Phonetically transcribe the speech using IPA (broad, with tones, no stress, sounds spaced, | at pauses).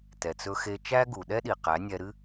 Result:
t ɛ˨ t͡s ɵ˧ x e˧ t͡ʃ æ˦ ɡ u˨ ɗ ɛ˦ ɗ i˨ q æ˨˦ nʲ ɛ˧ ɾ ɨ˦